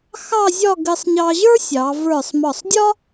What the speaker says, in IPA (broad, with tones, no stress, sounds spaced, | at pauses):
x ɑ˥˧ zʲ ɒ˥˧ ɡ ɘ˧ sˤ ɲ ɑ˧ ʑ ə˞˥ sʲ ɑ˩˧ v ə˞˧˩ sˤ m ɒ˧˩ sˤ dʲ ɒ˥